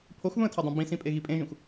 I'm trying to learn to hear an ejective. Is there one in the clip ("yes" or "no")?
yes